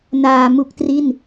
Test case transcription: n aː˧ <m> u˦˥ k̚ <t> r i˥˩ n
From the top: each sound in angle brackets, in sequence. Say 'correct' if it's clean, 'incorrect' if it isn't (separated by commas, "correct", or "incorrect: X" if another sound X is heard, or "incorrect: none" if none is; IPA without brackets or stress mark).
correct, correct